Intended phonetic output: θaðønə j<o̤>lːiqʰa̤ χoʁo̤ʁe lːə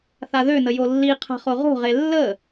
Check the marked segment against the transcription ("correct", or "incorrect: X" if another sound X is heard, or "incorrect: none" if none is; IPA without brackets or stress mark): incorrect: o